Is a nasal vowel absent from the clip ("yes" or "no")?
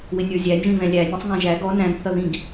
no